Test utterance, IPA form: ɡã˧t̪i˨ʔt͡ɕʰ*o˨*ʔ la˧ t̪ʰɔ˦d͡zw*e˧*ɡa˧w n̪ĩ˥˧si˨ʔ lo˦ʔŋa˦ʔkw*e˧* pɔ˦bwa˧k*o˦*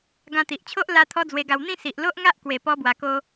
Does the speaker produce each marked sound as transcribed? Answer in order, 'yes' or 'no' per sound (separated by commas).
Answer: no, yes, no, yes